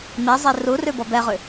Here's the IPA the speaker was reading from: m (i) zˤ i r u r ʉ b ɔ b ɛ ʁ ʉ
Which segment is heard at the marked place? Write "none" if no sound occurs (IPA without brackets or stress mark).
i